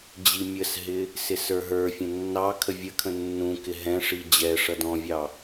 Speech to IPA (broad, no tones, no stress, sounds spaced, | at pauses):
d͡ʑ i mʲ ə s ɦ ɪ | s ɪ s ə˞ ɦ ə˞ fʲ ə̃ nː ɑ kʰ ə vʲ ə kʰ ə̃ nː ũ k ɪ ɦ ɛ̃ ʂ i d͡ʑ ɛ ʂ ʌ d ɔ̃ vʲ ɑ